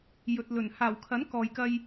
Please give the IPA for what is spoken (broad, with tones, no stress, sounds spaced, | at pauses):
j ɵ˨ t̚ l ɵ˨˩ n h aː˨˩ w kʰ ɐ˨˥ n k ɔː˨ j k ɐ˧ j